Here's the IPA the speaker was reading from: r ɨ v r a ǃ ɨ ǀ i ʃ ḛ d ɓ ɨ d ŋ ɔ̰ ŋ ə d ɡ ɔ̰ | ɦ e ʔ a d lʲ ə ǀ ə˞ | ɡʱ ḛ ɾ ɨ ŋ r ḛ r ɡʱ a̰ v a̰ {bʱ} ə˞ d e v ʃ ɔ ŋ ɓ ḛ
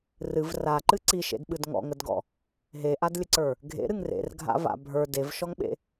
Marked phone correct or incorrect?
correct